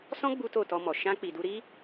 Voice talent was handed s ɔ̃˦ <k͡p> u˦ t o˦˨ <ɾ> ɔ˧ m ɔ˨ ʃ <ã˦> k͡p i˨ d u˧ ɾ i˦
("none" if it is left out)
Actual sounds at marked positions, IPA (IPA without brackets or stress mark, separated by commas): ɡ͡b, t, ã˧